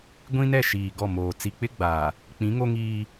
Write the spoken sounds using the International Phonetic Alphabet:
ɡʷ ĩ˦ n ɛ˦˨ ʃ iː˨ ɡ ɔ˦˨ m oː˨ t͡s i˨ k͡p ɪ˦ ɡ͡b aː˨ | k͡p ĩ˨˦ ŋ o˦ ŋ iː˦

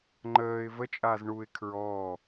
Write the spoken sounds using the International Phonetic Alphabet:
ŋ͡ǃ əː ɪ̯ v ə t͡ʃʼ aː z ɳ u ɪ̯ kʰ ɹ ɔː

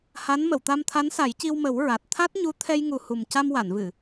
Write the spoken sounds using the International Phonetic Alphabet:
h a˧˥ n m ə˨˩˨ w t̪ a˧ m t̪ʰ a˧˥ n s a˨˩˦ j c i˧ w m ə˨˩˦ w ɹ a˨˩ t̚ t̪ʰ a˦˥ t̚ ɲ u˧˥ t̪ʰ ɛ˧ j ŋ u˨˩ h u˨˩ m c a˧ m w a˨˩˨ n v ɨ˨˩˨

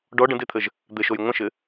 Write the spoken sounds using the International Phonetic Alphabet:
ɖ ɔ ɖ ə̃ d e t̪ʰ ə ʒ | d̪ ɘ ʃ o j ŋʷ ə̃ ʃ ɘ

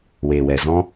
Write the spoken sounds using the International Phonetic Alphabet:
w eː˨ w ɛ˨ z ɔ̃˧

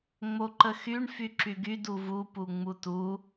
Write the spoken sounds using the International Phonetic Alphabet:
ŋ͡m o ǃ ə x y ɳ f y ǁ y ɡ y d u v u p u ŋ͡m u t u

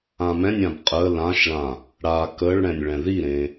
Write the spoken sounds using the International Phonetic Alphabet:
ã m ɛ̃ nʲ ã b qʼ ə l ã ʃ ɭ ã | ɽ a k ə ɭ ɽ ɛ̃ nʲ ɭ ɛ̃ ð i ɾ ẽ

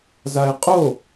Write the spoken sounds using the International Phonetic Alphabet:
z a e̯ qʼ o

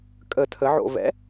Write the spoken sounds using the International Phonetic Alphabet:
kʼ ə tʰ ə ʕ o̰ v ɛ̰

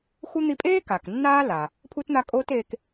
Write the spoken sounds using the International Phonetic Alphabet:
x u˥ n̪ i˦ pʼ eː˥ k a˩ k nː aː˦ l a˩ | pʰ u˥ t n̪ a˦ kʼ oː˥ t eː˦ k

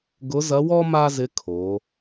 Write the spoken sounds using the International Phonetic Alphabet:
ɡ ʊ˧˥ z ɐ˧˥ w ɔ˥ m a˥ z ɪ˧˥ kʰ o˩˧

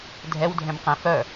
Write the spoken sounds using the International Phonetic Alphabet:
dʱ ɛ w dʱ ɛ̃ m q ɛ̃ f œ

